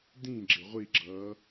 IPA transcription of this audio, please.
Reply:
d ĩ ɡ͡ǁ ɪ ʁʷ i ɡ͡ǁ ʌː

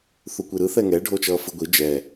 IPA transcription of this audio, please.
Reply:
θ u kʷ i ɾ ɯ θ ɛ ŋ ɛ ɖʱ o t͡ʃ ʌː f ɯ ɡʷ i d͡ʒ ɛ

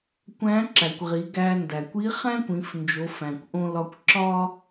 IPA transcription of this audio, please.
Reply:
kʷ æ̃˧˥ ǁ æ˩ kʷ ʁ i˩˧ ɡ æ˧ n d æ˩ kʷ i˧˥ χ æ̃˥ kʷ ĩ˩˧ f n d͡ʒ o˩˧ f æ̃˩ kʷ ʔ õ˧ l ɒ˧ kʷ ǁ ɒ˥

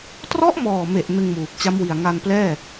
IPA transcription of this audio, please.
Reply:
t r ɔ˦˥ ʔ m ɔː˨˩ m e˨˩ ʔ n ɯ˧ ŋ m uː˨˩ k̚ t͡ɕ a˦˥ m w i˨˩ a̯ ŋ a˧ n p l ɛː˥˩

